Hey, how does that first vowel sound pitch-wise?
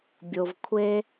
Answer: low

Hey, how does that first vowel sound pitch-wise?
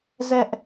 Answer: high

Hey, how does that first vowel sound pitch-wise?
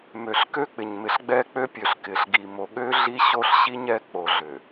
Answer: low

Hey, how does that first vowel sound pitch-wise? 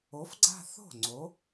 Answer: rising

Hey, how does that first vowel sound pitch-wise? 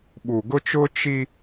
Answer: low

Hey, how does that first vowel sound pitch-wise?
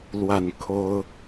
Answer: falling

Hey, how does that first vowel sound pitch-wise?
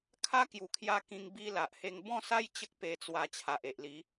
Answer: high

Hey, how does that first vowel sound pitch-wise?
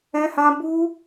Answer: high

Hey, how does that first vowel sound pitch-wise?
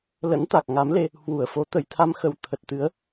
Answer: rising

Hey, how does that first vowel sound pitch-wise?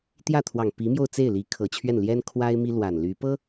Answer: falling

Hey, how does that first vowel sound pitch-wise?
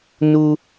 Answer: high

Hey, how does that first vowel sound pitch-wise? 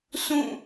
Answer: falling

